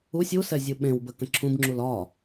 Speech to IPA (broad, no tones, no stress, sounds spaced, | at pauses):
u sʲ u s ɛ zʲ ɯ ɓ ẽ w b ə k ə̃ ǁʰ ũ b ŋ͡ǁ u l ɒ